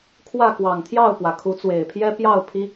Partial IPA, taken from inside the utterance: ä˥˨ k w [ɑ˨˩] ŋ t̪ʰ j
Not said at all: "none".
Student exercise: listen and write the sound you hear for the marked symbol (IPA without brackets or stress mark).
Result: ɑ˨˩